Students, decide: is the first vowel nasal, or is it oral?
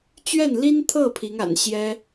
oral